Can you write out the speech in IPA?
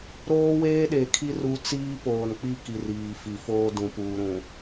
ɾ oː˦ w eː˦ ɗ e˨ kʰ i˦ r u˦ t͡s iː˦ p oː˨ n k͡p i˦ k i˨ r iː˨ f i˨ f oː˦ d ũ˨ p uː˨ ɾ ũ˨

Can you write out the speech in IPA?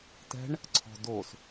t ɛ̤ ɳ | ǀʰ ɔ̤ d o s

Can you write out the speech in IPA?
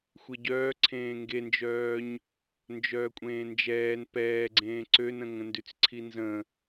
xʷ e ɟ œː ǀʰ ẽː ŋ ɡ e n d͡ʒ œː ɲ | n d͡ʒ œː kʷʼ ẽː n d͡ʒ ɛː n p ɛː ɡ͡ǀ ẽː ǀ ø n ə̃ ŋ ə̃ n d y t͡s ǀʰ i n z ə̃

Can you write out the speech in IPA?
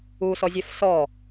u s ɔ zʲ ɛ f s ɔ

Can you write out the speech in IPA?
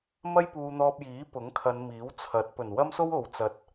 m ɐ˥ j p uː˧ n̪ ɔː˧ p̚ j iː˨˥ p ʊ˨˥ ŋ kʰ ɐ˨˧ n m iː˨˥ w t͡sʰ ɐ˨˥ t̚ p ɵ˨˩ n w ɐ˥ m s o˥ w o˨ w t͡s ɐ˧ t̚

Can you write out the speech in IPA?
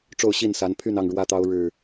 ʈ͡ʂ o˥˨ ʊ̯ ɕ i˥˨ n s a˨˦ n pʰ y˥˨ n ɑ˥˨ ŋ ɻ w ä˦ t̪ ɑ˦ ʊ̯ ɻ ɻ̩˥˨

